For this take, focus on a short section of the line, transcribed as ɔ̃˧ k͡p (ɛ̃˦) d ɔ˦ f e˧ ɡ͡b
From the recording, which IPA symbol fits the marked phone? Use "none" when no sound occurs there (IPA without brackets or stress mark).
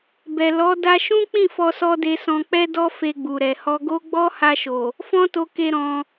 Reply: ɛ˦